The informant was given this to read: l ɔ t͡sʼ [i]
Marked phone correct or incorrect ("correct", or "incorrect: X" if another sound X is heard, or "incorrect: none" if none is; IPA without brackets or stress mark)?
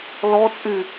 incorrect: y